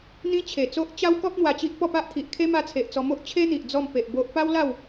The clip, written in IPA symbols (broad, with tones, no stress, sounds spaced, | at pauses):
n̪ ĩ˦ t͡ɕʰ e˨˩ t͡s o˦ ʔ t͡ɕ a˦ w k ɔ˦ p̚ n̪ w a˧ t͡ɕ i˦ ʔ p ɔ˥˧ p a˦ ʔ t̪ʰ i˨ ʔ kʰ e˦ m a˧ t͡sʰ e˨ ʔ t͡s ɔ˧ m o˦ ʔ t͡ɕʰ e˦ n̪ i˨ ʔ d͡z ɔ˥˧ m p e˨ ʔ b o˦ ʔ p a˦ w l a˥˧ w